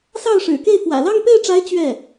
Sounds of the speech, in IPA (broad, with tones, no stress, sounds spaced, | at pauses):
s ɑ˥˩ ʊ̯ ʂ ɻ̩˨˩ k e˥˩ ɪ̯ f w ä̰˨˩ l ɑ˥˧ ŋ p e˥˩ ɪ̯ ʈ͡ʂ a˧˥ ɪ̯ t͡ɕ ɥ ɛ˥˩